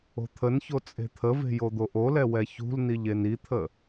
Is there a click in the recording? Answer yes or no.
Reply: no